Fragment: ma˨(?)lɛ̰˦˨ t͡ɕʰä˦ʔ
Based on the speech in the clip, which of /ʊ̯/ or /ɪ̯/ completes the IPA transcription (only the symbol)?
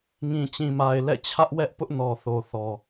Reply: ɪ̯